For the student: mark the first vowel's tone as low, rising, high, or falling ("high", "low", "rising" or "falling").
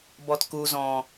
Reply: low